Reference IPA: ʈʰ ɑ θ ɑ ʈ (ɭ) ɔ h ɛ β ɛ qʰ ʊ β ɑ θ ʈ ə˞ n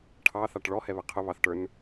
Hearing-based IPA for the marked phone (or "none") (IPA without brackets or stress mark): ɭ